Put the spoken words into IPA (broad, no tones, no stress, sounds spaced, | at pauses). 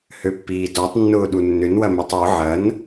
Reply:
h ø pː iː d ɔ tˤ nː ʊː ɗ u nː ʏ n w ɐ m ɛ tˤ w ʊ ʕ ɐ n